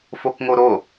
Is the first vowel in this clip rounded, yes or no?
yes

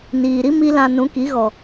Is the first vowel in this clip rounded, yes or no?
no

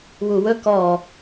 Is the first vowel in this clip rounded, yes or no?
yes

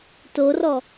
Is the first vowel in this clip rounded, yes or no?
yes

